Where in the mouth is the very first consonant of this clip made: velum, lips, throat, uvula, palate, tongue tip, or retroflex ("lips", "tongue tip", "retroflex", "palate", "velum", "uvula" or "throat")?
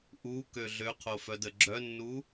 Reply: throat